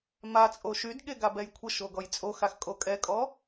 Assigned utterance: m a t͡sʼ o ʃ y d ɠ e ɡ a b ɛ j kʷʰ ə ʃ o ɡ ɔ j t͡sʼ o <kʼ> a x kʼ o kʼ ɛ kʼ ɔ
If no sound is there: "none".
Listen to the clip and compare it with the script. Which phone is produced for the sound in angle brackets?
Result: x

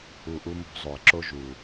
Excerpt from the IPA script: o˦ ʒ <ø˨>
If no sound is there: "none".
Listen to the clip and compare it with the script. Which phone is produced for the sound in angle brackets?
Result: u˨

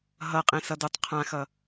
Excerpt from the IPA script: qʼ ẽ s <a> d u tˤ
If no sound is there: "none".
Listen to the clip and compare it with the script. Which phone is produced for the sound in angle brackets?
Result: ʌ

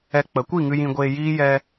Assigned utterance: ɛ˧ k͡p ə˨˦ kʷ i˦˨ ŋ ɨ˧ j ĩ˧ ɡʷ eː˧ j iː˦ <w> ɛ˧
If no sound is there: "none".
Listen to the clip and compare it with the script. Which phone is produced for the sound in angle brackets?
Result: j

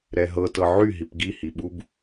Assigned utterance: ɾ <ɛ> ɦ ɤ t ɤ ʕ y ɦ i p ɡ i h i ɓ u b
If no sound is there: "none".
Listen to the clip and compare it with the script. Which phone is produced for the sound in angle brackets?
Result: ɛ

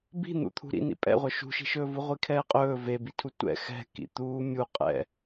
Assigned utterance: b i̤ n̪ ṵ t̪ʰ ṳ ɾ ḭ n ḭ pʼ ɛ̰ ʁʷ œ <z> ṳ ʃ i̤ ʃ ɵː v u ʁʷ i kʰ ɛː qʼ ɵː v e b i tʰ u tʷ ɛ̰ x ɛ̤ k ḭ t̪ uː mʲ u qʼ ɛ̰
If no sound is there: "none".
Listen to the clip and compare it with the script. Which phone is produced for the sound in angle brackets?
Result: ʃ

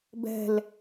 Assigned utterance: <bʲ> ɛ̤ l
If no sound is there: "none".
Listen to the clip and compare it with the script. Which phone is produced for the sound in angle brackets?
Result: b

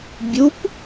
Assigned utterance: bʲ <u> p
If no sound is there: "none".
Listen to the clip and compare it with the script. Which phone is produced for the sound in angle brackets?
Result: u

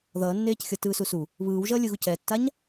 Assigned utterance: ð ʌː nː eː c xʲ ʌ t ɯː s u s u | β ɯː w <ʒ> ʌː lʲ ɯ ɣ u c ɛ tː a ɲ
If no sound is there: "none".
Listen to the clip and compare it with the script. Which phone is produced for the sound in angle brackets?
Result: ʒ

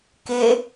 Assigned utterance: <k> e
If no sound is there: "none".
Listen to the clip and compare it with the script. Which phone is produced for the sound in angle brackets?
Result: k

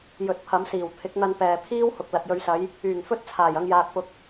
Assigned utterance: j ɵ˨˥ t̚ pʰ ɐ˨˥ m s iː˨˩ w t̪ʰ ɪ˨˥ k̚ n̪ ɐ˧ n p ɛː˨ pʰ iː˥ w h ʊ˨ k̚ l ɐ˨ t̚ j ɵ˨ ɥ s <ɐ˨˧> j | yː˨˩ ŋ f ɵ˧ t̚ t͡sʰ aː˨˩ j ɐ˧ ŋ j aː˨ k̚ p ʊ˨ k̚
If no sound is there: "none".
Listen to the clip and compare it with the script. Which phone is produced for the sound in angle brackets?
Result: ɐ˨˧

